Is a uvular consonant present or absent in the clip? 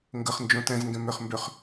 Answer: present